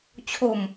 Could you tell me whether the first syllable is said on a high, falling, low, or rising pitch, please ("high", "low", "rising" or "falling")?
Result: low